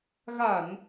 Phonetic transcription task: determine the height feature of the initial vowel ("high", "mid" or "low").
low